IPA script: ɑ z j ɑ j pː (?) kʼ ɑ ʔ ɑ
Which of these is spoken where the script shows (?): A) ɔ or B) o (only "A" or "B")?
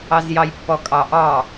A